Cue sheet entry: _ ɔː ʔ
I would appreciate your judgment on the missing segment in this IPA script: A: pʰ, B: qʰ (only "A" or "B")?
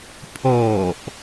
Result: A